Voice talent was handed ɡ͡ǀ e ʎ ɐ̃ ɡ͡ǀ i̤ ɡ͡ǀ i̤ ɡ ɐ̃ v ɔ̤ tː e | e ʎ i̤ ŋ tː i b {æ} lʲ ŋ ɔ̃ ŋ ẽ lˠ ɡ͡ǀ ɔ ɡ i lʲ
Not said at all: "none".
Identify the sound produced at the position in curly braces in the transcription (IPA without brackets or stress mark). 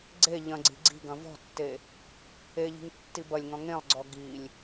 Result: ɐ